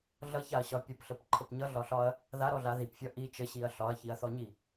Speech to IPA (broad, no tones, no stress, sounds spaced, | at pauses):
ɮ ʌ ç a ɐ̯ ɕ ɒ pʲ ʌ p ɬ ə p ǃʰ ə p ɲ ʌ ɮ ɒ ɬ ɒ ɐ̯ | ð a ɾ ɔ ɮ a ð i p fʲ ɒ ʔ i t͡ʃ ə ɕ i ɐ̯ ɬ ɒ ɐ̯ ç i ɐ̯ θ ɔ ɲ i